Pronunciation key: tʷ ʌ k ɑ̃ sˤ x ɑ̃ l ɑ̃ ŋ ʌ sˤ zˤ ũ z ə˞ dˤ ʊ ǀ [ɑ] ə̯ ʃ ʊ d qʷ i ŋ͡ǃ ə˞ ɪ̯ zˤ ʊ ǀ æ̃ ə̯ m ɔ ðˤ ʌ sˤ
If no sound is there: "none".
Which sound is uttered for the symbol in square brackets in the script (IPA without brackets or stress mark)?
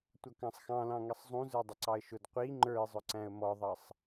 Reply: ɑ